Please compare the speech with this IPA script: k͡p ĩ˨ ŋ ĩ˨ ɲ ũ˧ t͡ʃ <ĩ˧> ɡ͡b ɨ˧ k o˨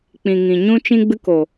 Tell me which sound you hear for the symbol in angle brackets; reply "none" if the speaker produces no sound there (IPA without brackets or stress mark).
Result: ĩ˧